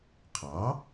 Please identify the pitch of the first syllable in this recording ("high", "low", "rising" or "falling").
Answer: rising